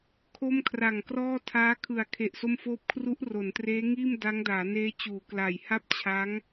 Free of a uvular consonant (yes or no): yes